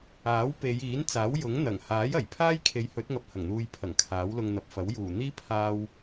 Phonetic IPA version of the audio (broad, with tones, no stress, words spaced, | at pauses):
aː˨˥w pe˨˧jiː˨˥nt͡saː˨˥w jʊ˨˥ŋ n̪ɐ˨˩ŋhaː˨˥jɐ˨˩j pʰaː˥jkʰe˨˧jhɵ˨˥t̚ŋɐ˨p̚ hɐ˨˩ŋn̪uː˨jpʰɐ˨˩ŋ kʰaː˨˥wlʊ˧ŋn̪ɐ˨p̚fɐ˨˥w juː˨˩n̪iː˥ pʰaː˧w